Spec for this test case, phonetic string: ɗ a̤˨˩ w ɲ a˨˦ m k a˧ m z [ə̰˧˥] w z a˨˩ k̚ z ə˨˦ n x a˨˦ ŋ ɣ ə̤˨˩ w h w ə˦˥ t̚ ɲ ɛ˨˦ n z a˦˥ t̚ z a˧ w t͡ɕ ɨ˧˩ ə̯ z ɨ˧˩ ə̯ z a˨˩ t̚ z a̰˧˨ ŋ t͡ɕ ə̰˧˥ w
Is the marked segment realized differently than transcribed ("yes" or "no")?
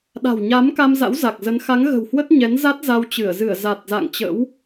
yes